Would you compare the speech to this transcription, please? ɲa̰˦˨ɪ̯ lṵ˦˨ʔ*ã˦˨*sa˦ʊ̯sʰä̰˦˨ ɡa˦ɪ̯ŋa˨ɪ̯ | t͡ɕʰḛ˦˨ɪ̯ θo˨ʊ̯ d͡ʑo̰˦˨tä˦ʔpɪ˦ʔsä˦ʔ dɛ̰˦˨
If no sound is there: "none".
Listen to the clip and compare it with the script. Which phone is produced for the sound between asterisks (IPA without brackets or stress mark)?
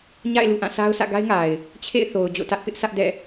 ã˦˨